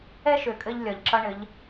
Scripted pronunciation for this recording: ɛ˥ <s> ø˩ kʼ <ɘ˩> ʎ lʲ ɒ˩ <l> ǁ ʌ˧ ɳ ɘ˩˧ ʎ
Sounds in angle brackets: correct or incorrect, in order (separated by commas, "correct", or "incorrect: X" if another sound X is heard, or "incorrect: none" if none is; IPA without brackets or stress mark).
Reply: incorrect: ʃ, incorrect: ɘ˧, incorrect: ʎ